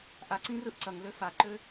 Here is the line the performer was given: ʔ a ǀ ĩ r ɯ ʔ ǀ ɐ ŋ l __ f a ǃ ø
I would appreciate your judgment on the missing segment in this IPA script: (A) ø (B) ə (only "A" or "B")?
A